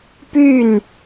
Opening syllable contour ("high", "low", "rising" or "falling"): falling